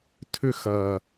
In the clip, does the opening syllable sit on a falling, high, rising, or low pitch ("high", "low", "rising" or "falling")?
high